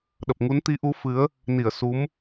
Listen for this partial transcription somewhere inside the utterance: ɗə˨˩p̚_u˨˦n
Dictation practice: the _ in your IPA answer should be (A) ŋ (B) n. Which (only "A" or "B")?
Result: A